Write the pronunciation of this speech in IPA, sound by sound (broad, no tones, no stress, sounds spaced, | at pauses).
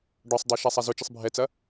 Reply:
ɖ ɔ sˤ dˤ a ʃ a sˤ a z ʊ t͡ʃ ɪ sˤ bʱ ɛ t͡s ɐ